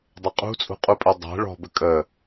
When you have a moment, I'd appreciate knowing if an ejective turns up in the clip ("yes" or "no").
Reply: yes